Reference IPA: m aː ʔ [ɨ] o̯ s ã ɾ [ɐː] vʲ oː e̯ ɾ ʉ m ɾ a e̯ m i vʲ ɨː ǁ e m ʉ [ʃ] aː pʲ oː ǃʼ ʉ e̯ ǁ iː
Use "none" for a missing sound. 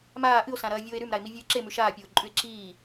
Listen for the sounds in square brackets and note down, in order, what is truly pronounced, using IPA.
ɨ, ɐː, ʃ

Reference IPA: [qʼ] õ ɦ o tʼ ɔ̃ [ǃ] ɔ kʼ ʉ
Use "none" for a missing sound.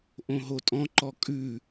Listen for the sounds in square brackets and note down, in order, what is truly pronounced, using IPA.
ʔ, ǃ

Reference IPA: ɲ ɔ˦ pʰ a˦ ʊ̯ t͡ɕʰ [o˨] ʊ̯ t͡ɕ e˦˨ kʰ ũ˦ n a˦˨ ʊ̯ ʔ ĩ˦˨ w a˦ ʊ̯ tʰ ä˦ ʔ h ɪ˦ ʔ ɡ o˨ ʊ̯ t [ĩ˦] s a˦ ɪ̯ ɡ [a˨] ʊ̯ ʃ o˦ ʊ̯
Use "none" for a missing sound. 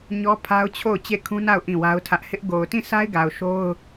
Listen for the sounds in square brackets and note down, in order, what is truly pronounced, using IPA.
o˦˨, ĩ˦˨, a˨

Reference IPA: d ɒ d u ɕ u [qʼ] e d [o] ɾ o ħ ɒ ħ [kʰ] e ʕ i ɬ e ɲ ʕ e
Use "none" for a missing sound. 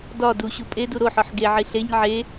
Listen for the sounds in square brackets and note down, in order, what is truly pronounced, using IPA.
pʼ, u, ɡ

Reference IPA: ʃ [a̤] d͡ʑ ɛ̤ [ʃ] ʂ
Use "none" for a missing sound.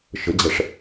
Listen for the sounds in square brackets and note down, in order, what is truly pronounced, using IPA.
ə̤, none

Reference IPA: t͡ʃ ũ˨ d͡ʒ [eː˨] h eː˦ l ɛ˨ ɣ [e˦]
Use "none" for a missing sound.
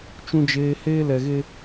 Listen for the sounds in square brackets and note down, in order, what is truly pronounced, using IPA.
eː˨, e˦

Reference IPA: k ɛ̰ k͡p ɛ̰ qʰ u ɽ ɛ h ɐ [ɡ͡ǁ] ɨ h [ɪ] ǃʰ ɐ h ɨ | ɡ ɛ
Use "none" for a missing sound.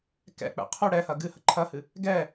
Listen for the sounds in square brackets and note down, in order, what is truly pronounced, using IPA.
ɡ, ə

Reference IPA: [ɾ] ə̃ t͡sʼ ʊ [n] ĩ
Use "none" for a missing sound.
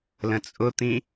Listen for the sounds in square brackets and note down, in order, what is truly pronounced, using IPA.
l, t̪

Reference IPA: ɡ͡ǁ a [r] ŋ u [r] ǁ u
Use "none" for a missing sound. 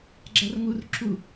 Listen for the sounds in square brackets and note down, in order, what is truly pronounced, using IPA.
r, r

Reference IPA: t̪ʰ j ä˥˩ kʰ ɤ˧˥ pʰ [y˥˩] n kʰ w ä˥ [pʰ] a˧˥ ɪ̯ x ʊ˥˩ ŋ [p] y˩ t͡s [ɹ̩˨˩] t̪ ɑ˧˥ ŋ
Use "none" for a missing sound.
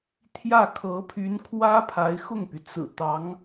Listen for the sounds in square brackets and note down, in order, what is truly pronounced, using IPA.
y˧˥, pʰ, p, ɹ̩˨˩

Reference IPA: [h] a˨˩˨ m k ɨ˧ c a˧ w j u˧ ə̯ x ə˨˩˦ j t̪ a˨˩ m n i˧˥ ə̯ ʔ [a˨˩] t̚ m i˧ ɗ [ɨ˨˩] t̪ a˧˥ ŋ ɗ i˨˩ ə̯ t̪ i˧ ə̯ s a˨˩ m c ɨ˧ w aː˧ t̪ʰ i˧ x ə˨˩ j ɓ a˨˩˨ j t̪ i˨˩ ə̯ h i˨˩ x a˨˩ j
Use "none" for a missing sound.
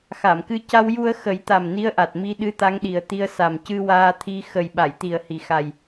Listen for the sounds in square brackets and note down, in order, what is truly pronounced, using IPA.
x, a˨˩, ɨ˧˥

